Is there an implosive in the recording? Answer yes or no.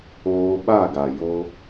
yes